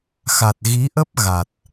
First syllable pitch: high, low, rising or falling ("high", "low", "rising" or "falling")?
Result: low